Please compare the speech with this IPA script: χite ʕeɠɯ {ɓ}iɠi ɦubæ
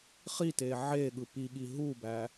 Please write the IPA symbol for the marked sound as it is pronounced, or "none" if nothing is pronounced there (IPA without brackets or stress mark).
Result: p